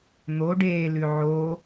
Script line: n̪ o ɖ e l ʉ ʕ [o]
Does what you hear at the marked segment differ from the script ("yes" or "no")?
no